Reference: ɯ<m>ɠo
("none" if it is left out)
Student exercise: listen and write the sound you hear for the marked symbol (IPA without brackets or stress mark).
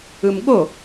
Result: m